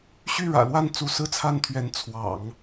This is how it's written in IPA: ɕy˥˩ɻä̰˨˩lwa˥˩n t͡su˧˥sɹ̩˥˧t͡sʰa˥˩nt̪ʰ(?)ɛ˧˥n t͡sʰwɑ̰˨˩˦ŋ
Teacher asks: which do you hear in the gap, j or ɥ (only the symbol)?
ɥ